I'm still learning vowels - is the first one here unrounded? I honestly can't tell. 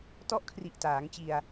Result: no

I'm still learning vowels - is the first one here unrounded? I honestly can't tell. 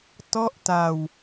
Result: no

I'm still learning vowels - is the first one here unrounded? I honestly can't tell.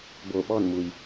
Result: no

